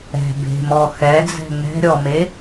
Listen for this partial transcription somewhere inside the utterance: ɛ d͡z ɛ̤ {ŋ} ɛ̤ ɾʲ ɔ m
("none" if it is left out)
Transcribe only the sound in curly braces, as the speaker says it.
ŋ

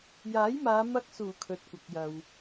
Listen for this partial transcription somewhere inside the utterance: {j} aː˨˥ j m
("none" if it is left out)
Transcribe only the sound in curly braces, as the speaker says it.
j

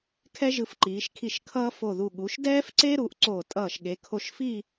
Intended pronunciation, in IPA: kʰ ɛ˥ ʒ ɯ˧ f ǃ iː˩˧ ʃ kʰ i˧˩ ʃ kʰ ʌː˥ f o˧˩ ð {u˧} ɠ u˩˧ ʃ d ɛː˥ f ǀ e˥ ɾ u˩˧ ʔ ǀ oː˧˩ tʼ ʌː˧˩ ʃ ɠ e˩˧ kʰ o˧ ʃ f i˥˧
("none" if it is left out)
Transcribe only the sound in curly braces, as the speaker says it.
u˧˩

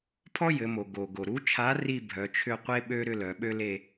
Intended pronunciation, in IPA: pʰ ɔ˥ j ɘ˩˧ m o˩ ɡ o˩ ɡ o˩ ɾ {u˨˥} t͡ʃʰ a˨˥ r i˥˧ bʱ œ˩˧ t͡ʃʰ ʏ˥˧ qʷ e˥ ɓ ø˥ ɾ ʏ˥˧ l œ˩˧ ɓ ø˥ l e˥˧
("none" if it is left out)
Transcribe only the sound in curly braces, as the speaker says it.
u˨˥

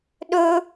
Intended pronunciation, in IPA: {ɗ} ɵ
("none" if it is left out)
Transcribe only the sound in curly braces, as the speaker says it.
ɗ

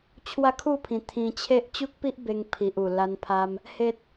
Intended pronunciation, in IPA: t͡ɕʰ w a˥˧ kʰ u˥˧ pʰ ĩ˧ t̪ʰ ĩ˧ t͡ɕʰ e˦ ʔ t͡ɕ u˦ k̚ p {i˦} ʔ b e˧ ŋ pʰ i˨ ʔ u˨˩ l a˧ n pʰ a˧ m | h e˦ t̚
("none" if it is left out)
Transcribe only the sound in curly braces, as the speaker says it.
i˦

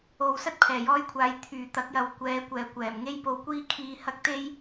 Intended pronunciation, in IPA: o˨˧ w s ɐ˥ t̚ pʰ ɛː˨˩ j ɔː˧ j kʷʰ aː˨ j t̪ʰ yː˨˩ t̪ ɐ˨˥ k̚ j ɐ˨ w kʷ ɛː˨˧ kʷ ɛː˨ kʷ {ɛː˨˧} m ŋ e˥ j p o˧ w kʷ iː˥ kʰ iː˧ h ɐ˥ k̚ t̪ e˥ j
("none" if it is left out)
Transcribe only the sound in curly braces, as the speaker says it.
ɛː˨˩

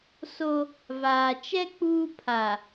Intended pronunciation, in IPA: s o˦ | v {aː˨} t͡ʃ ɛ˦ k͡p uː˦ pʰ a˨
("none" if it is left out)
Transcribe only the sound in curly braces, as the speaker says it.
aː˨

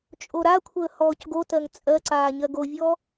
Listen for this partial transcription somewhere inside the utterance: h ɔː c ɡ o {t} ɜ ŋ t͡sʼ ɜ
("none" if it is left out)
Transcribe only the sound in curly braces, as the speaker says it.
t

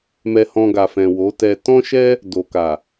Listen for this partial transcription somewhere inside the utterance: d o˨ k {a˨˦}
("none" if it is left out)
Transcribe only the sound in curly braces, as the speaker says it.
a˨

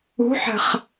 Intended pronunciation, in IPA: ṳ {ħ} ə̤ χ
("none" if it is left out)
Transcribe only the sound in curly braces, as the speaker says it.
ħ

